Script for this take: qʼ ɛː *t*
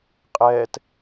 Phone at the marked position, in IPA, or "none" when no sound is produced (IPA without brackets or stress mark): t